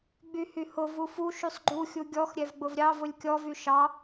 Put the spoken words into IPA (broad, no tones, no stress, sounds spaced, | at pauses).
ɡ͡b y h y h ʊ v u f u ʃ y sˤ ɡ͡ǃ u xʲ u ɡʲ ɔ x ɾʲ ɛ v ɡ͡b ʊ v ɾʲ ɑ v ʊ lʲ kʲ ɔ v y ʃ ɑ